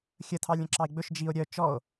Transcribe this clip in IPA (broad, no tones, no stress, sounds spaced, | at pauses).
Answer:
xʲ ə tʰ ɑ lʲ ə̃ ǁ ɑ e̯ ɡ͡b ɵ ʃ d͡ʒ i o̯ ɾʲ œ t͡ʃ ɔ o̯